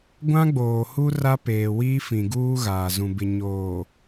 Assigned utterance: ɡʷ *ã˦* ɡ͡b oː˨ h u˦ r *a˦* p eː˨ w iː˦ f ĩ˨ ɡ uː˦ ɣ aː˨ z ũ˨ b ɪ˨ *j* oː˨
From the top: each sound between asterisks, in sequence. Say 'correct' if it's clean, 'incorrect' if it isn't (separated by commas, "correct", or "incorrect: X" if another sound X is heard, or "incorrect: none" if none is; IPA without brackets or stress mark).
correct, correct, incorrect: ɲ